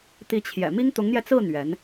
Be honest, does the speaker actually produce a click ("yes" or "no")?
no